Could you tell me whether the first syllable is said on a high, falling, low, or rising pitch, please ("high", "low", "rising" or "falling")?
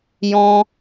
high